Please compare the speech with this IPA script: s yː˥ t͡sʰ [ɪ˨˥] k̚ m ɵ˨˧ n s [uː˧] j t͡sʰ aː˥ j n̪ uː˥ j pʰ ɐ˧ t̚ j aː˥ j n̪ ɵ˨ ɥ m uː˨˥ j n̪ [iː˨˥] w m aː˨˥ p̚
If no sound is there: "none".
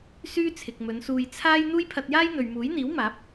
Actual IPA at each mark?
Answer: ɪ˨, uː˧, iː˨˥

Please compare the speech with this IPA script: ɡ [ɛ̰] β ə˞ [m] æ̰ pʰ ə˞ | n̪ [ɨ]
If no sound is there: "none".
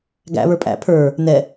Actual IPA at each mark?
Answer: æ̰, pʼ, ɛ

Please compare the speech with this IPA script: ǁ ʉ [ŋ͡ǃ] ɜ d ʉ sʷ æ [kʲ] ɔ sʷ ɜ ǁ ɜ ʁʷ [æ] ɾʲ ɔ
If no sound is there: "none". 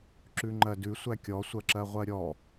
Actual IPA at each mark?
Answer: ŋ͡ǃ, kʲ, ɜ

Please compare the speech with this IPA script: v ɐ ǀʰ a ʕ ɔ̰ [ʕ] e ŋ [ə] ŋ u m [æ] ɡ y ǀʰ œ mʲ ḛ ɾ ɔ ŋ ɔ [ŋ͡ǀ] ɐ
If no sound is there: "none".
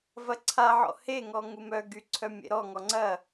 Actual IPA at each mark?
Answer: h, ɔ, œ, ŋ͡ǀ

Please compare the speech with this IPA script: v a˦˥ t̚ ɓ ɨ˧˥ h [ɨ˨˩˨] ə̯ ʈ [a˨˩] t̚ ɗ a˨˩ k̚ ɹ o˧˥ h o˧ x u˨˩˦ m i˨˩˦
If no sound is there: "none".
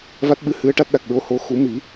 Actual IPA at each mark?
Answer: ɨ˧˥, a˦˥

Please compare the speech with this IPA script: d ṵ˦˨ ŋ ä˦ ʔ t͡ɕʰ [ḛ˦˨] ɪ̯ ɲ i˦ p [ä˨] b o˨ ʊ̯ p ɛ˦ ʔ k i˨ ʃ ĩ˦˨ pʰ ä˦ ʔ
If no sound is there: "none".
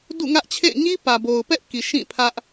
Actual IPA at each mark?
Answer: ḛ˦˨, ä˨

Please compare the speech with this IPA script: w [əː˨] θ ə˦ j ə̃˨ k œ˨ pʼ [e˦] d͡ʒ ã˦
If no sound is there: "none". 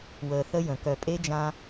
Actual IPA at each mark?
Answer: əː˨, e˦

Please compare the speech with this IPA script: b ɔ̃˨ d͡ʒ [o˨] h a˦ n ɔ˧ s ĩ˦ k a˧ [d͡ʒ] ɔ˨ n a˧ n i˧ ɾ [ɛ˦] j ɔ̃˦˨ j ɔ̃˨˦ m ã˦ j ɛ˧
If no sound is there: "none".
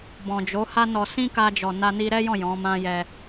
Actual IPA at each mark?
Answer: o˨˦, d͡ʒ, ɛ˦

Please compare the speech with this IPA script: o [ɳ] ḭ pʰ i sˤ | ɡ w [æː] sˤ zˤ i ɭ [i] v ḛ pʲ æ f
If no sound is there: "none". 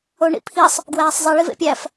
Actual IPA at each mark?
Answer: ɳ, æː, i

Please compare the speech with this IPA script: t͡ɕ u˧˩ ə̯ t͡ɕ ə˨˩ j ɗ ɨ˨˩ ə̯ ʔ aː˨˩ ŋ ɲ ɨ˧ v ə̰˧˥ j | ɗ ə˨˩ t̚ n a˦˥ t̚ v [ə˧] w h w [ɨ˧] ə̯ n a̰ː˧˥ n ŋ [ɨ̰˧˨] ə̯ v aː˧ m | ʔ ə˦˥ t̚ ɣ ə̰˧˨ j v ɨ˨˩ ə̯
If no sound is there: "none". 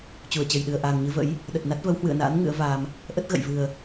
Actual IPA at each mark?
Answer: ə˨˦, ɨ̰˧˨, ɨ̰˧˥

